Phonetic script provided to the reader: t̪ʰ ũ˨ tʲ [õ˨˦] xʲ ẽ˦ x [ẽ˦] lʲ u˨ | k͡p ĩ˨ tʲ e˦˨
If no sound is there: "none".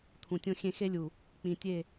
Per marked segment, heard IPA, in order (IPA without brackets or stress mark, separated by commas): õ˦, e˦